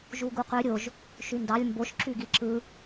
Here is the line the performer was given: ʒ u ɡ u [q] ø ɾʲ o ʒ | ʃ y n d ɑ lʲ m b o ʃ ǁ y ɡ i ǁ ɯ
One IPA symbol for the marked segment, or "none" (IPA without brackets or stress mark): q